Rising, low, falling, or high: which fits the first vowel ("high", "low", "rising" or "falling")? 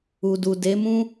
low